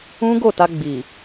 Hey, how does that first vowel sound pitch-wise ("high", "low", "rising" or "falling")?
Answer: high